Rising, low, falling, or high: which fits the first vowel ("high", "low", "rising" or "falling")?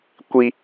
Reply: high